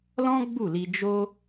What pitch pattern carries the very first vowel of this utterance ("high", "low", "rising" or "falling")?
high